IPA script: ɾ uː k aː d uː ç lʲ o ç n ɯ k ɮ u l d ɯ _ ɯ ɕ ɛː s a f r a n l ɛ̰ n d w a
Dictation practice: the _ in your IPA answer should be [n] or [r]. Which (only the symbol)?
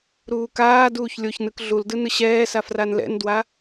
n